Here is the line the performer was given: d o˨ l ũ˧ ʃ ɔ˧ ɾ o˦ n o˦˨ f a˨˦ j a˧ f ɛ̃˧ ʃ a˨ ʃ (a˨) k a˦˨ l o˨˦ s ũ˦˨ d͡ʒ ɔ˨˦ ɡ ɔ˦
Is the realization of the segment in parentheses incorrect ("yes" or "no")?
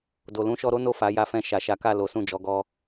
yes